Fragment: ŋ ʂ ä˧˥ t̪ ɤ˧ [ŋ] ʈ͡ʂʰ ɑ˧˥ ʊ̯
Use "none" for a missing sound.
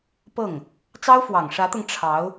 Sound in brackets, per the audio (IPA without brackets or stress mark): ŋ